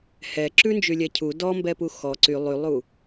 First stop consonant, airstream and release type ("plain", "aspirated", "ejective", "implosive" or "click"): click